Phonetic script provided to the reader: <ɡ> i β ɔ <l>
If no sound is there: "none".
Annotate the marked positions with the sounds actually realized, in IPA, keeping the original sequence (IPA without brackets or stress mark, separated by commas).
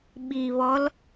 ɓ, l